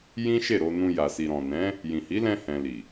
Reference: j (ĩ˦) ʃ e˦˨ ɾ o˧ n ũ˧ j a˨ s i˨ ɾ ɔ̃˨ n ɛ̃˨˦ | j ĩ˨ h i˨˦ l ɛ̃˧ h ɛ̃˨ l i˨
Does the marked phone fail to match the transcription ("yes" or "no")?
no